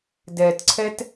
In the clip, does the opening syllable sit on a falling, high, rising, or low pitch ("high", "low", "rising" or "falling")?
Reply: low